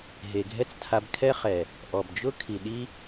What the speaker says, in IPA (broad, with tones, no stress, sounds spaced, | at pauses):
ɦ e˨ ɡʱ ɛ˦ t͡s tʰ a˧ b kʰ ɛ˦ χ ɛ˨ | ʔ ɔ˨ b d͡ʒ ʊ˦ kʰ i˨ ɗ i˦